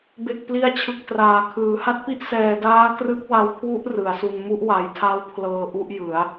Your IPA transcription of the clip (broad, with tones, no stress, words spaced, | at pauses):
be˨˩k̚pli˧a̯t͡ɕʰɯ˨˩k̚ traː˩˦kʰɯː˩˦ ha˦˥t̚pi˦˥ʔ sɛː˧ daː˦˥ krɯ˦˥k̚wa˧w kʰwu˦˥ʔ rɯ˩˦a̯su˧n mu˥˩ʔwa˩˦jtʰa˦˥wpʰlɤː˧ ʔu˥˩ʔjɯ˩˦a̯